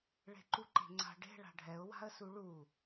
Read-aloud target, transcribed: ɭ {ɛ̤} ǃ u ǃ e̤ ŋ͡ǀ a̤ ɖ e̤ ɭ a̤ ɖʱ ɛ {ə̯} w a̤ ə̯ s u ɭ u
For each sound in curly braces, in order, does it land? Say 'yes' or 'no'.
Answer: no, no

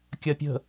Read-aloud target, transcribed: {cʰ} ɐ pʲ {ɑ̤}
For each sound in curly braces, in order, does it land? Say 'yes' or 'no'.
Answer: no, no

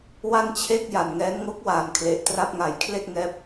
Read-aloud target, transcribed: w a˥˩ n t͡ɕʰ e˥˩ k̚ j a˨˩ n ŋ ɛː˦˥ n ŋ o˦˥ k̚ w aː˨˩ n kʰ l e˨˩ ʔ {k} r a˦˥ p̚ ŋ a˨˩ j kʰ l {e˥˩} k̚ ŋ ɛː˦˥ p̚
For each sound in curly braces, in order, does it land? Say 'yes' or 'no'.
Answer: no, yes

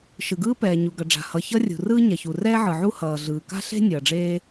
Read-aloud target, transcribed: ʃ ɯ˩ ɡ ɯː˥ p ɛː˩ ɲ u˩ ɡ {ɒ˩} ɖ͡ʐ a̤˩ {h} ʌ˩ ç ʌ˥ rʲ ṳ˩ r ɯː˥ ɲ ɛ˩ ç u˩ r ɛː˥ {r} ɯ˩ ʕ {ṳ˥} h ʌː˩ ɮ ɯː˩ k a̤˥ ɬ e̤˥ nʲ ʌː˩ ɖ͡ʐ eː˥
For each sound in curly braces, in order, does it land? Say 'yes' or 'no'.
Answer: no, yes, no, no

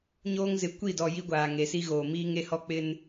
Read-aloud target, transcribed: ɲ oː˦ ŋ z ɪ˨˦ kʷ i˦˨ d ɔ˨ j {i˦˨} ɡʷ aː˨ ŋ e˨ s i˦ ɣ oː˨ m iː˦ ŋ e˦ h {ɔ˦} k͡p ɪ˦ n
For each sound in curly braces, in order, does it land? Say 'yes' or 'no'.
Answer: no, yes

